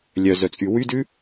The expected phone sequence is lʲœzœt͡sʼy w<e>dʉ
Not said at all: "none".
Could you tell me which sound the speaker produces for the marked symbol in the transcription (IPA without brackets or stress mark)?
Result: y